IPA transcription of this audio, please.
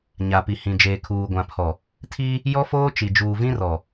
ɲa˨pi˨hĩ˨ d͡ʒeː˨kʰuː˨ɡʷã˨pʰɔ˨ | tʰi˦ | jɔ˦foː˦t͡ʃi˨ d͡ʒuː˨vĩ˦rɔ˨

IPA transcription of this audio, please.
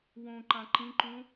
wõ ǃãǃĩǃũ

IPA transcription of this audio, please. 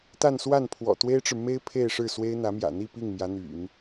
t̪a˥˧nswa˥˩n pʰwɔ̰˨˩t̪we˥ɪ̯ʈ͡ʂɻ̩˨ me˥ɪ̯ pʰe˥˧ɪ̯ʂɻ̩˥˩swe˥ɪ̯ n̪ä˧˥mjä̰˨˩n̪i˥˧ pi˥˩ŋmjä˧˥n̪y̰˨˩˦n

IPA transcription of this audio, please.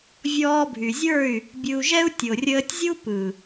vʲɔː˧bʱy˨zʲə˞˦˨y̯ | bʲɯ˧u̯ʒɛ˦u̯ tʲo˨rʲəː˧tʲzʲu˦ pɯ˨

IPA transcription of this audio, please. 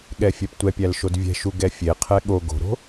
ɠɛfʲɛptʷɛpʲæl ʃodvʲɛ̤ʃu ɡɛfʲeqʰɛ ɠo ɡo̤ɾo̤

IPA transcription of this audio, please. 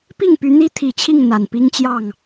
pi˥˨ŋpy˨˦n̪i˦ t̪ʰi˨˩t͡ɕʰi˥˨ŋ n̪a˨˩npi˦ŋt͡ɕjɑ˥˨ŋ

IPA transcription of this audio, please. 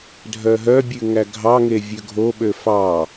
dʱœɦœbʲʉ ŋæɡʱɑŋe vʲøɡʱoɓø fɑ

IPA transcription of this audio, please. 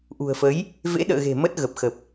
ʔṳ˨˩ə̯fə˨˦j | vḛ˧˥ɗə̰ː˧˨ɣe̤˨˩ mə˦˥t̚ɣə˨˩p̚xə˨˩p̚

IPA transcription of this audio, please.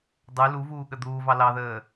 dˤʉ luvuːɠə d̪uːvɑ lɑðəː

